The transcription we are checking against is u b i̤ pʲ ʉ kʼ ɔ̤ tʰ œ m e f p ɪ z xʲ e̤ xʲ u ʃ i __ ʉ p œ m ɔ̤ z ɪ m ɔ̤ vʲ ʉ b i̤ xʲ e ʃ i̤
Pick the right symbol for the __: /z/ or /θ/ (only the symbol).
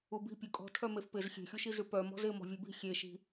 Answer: z